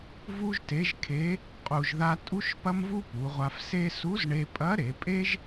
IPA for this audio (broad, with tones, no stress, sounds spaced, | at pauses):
v u˥ ʒ t e˧˥ ʒ kʰ e˧˥ | qʼ u˧ ʒ ð a˥ tʼ u˥ ʃ p ɐ˥ m v u˥ p u˩˧ ʁʷ a˧ f s e˥ s u˧˥ z ɳ e˧ pʼ ɐ˧˥ ɾ e˩˧ pʼ e˥ ʒ